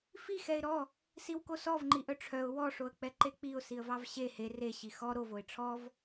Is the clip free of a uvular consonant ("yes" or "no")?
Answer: yes